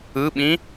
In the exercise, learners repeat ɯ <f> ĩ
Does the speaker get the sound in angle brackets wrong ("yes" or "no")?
yes